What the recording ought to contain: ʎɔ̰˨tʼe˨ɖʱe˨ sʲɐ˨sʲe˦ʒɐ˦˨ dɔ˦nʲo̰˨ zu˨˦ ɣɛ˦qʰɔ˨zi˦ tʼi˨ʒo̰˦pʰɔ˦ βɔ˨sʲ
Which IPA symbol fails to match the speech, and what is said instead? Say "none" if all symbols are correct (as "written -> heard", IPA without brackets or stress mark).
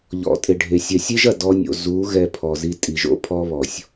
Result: qʰ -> pʰ